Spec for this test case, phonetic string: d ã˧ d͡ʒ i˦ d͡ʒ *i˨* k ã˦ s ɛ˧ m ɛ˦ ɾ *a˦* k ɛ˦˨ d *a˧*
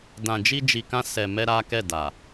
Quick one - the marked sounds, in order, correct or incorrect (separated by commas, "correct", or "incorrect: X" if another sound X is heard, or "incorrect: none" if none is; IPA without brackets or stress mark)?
incorrect: i˧, correct, incorrect: a˨